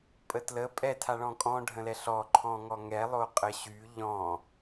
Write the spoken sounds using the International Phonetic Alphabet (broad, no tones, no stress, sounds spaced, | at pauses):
pʼ ə t l ə pʼ ɛ tʰ a ɭ ɔ̃ kʼ ɔ̃ ɖʱ ə̃ l ɛ ɬ ɔ ǃʰ ɔ̃ ŋ ɔ ŋ ɛ lˠ o qʼ ə ɕ y ʎ ɔ̃